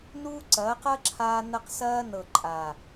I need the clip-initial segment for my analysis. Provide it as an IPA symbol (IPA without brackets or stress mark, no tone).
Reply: n